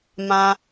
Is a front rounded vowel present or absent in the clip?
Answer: absent